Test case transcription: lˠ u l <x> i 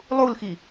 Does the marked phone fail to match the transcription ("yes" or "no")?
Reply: no